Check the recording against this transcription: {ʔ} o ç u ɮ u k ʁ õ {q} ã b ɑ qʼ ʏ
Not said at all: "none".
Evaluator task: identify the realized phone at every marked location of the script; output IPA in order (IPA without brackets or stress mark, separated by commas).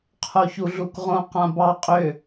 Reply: qʰ, q